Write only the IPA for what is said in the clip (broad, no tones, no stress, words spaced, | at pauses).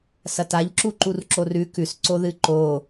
sɐtaʎǁu ǃurǁorʉ kʉsǀoðɨ ǃo